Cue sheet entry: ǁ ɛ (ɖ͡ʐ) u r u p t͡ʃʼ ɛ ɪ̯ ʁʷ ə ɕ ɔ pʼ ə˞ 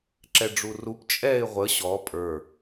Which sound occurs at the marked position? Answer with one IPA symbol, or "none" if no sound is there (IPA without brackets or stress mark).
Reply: ɖ͡ʐ